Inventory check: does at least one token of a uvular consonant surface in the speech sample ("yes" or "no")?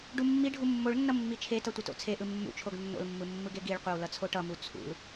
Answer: yes